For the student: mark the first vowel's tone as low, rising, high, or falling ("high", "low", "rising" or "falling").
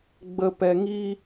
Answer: low